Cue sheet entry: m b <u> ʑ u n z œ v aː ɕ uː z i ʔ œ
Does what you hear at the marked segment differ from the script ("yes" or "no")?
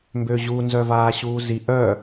yes